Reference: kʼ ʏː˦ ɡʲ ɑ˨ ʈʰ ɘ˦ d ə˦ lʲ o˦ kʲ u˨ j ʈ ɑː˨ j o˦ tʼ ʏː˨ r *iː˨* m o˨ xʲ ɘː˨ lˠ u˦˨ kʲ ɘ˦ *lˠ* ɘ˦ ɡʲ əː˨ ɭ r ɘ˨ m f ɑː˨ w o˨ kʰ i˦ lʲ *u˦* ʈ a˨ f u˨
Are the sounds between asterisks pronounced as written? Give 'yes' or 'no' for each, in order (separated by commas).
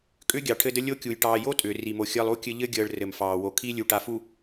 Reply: no, no, no